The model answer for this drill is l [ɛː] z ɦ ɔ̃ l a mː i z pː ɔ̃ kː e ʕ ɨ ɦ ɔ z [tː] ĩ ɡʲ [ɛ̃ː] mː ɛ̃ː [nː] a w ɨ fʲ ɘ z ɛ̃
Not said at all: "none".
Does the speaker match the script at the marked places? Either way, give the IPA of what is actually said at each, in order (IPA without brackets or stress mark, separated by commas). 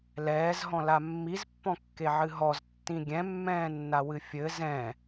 ɛː, tː, ɛ̃, nː